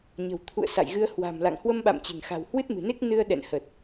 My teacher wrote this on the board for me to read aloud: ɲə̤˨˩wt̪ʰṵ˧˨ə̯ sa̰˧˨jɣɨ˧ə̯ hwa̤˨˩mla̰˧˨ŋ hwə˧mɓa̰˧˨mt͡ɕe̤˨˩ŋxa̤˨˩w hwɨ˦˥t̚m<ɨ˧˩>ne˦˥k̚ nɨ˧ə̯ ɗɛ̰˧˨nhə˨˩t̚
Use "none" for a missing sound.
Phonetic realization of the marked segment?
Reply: ɨ̤˨˩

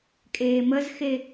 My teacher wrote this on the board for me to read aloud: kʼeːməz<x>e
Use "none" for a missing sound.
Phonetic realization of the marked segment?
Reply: x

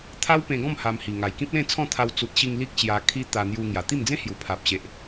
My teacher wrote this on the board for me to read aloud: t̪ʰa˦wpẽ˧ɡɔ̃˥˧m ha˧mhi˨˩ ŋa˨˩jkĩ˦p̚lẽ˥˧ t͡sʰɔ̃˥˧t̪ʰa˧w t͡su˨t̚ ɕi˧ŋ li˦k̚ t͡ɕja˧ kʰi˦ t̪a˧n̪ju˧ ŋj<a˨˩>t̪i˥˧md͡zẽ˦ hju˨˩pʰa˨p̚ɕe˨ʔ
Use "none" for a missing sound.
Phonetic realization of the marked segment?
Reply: a˨˩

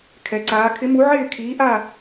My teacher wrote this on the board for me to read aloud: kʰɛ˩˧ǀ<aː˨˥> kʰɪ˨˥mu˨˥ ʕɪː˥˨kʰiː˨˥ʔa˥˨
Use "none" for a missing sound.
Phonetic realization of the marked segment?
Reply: aː˨˥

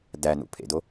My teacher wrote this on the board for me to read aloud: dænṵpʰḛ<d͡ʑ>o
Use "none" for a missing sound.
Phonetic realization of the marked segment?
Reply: d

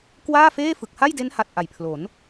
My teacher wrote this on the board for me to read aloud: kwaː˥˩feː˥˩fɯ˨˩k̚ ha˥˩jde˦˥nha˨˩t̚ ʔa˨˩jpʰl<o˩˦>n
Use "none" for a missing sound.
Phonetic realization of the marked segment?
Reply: o˩˦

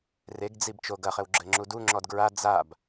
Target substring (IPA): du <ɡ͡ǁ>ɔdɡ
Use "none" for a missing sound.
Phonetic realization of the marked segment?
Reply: ŋ͡ǁ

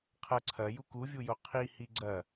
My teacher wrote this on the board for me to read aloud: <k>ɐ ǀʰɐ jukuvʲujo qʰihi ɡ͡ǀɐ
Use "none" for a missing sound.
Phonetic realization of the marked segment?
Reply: qʰ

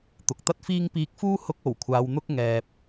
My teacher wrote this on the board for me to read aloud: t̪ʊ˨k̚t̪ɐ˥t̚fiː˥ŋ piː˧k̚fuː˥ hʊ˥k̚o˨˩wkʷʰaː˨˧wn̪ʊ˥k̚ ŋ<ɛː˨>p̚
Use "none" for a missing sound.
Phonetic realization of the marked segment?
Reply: ɛː˨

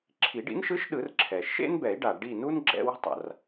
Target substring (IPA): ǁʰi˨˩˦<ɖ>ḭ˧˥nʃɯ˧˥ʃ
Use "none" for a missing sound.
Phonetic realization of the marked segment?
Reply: ɖ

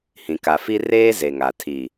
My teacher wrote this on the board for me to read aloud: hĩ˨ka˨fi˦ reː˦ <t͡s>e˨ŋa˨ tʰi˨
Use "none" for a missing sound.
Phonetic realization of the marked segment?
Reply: z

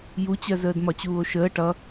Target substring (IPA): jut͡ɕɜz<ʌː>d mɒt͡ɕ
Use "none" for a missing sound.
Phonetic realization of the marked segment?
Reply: əː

